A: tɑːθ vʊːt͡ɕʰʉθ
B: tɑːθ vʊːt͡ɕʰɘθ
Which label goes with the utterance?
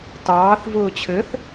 B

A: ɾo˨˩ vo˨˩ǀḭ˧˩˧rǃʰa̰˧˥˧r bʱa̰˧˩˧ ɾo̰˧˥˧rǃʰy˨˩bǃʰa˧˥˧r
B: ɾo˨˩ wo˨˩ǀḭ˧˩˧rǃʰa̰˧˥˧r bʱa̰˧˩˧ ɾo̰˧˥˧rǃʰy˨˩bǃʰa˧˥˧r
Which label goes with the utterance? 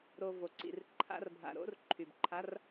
A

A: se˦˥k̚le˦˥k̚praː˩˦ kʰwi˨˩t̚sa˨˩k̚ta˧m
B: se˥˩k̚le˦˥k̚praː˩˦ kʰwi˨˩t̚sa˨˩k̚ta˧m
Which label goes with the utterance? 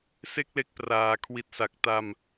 B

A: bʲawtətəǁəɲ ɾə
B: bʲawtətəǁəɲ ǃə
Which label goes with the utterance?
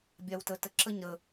A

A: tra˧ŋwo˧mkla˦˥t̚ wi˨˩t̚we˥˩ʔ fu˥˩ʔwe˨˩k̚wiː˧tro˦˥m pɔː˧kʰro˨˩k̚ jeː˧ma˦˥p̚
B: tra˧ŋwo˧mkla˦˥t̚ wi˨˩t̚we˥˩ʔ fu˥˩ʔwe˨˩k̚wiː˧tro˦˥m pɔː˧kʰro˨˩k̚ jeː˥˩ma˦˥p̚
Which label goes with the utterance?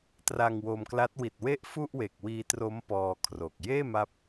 B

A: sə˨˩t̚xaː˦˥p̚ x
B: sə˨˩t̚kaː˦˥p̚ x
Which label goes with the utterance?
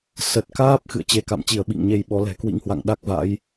B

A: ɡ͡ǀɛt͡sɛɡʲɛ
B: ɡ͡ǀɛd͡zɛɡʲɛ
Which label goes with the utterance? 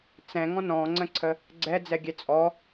B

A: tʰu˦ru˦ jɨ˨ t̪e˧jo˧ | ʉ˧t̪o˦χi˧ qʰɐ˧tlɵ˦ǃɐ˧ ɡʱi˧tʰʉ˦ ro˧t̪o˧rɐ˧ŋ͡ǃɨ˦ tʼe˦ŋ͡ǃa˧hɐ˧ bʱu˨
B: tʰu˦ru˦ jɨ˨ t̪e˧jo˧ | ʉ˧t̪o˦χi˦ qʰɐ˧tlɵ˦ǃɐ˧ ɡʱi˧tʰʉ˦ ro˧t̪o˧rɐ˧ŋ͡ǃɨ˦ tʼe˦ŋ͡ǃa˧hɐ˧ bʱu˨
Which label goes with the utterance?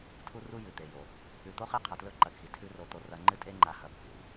B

